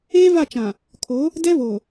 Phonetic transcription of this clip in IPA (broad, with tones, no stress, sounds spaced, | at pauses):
eː˦ v a˦˨ t͡ʃ ã˨ | kʰ o˨˦ | d ɛ˦ v oː˨